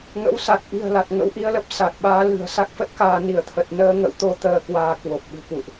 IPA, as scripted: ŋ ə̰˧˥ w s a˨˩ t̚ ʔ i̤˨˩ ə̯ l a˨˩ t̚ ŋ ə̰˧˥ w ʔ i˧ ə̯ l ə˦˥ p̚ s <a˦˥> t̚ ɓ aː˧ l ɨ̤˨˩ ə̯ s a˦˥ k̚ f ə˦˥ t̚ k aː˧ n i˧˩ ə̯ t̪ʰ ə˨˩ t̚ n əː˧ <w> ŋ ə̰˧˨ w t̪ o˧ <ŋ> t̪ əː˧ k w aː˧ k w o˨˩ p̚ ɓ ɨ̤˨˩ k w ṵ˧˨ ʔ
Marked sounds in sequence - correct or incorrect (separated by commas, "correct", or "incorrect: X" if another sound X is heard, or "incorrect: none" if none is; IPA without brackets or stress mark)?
incorrect: a˨˩, incorrect: none, incorrect: none